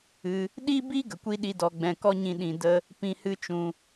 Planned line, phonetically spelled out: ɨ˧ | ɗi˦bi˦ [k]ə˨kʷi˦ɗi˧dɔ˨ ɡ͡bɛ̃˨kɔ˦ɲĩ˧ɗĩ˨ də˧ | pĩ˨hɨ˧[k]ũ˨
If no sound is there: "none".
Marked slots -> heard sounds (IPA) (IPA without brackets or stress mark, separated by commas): ɡ, t͡ʃ